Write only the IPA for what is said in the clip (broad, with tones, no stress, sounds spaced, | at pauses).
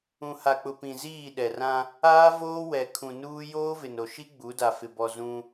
ũ˨ h a˨ k͡p ʊ˨ p ĩ˨ z iː˦˨ ɗ ɛ˨ r ã˦ | aː˦ v oː˦ w ɛ˨ kʰ ũ˨ n uː˦ j oː˦ v ɪ˨ n o˨ ʃ i˦ ɡ͡b u˨˦ d a˨ f ɪ˨ b ɔ˨ z ũ˦